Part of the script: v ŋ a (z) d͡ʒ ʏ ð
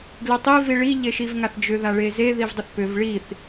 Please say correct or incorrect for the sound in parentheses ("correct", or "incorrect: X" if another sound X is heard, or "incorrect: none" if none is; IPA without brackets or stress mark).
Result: incorrect: θ